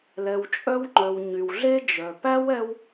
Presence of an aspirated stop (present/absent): absent